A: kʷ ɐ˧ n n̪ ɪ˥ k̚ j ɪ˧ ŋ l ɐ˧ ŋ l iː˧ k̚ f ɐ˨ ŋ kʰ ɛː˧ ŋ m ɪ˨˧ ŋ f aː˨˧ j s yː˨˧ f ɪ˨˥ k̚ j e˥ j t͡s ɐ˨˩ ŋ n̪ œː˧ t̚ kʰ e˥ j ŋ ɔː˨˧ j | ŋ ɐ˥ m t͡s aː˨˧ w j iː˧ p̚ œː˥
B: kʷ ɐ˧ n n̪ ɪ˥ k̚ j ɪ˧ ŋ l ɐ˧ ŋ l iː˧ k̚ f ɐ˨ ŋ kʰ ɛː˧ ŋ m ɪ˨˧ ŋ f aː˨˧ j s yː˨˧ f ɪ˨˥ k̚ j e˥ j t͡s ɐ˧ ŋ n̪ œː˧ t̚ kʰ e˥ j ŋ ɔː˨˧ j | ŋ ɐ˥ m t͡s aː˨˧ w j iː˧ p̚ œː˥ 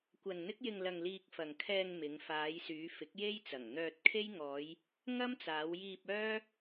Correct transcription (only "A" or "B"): A